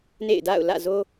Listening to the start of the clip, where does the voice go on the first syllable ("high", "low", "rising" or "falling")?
falling